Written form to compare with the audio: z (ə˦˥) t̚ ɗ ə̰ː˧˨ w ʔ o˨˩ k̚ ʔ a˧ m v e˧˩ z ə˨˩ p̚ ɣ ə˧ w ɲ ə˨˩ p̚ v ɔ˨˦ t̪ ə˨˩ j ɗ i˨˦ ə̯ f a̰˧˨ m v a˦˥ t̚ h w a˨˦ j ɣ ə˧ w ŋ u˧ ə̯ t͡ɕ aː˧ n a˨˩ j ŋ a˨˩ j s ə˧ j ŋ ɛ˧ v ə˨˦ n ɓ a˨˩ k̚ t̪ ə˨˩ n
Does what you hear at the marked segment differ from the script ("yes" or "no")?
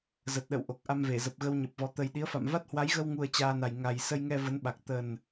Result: yes